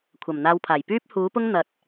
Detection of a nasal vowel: absent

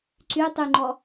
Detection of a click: present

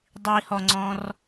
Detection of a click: present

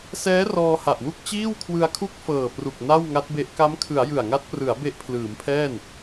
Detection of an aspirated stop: present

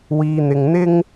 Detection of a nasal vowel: absent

